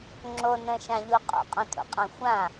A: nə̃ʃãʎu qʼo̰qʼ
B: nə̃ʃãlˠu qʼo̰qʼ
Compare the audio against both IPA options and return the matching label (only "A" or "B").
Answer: A